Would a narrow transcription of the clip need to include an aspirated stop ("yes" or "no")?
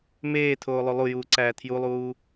yes